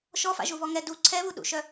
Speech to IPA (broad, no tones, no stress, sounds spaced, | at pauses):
ʃ ɔ f a̰ ʒ u β ɔ ŋ ɛ d u ǀʰ ɛ β u ɗ ṵ ʃ œ